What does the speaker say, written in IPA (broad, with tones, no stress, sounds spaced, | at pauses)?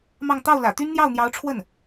m ɑ˥˧ ŋ t̪ ɑ˥˩ ʊ̯ l ä̰˨˩ t̪ y˥ n n̪ j ɑ˥˩ ʊ̯ n̪ j ɑ˧˥ ʊ̯ ʈ͡ʂʰ w ə˥˩ n